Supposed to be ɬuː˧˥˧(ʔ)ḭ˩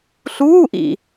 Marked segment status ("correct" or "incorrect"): correct